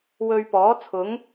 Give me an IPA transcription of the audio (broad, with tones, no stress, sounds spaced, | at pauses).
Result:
w ɵ˧ ɥ p ɔː˨˥ t͡sʰ ʊ˨˥ ŋ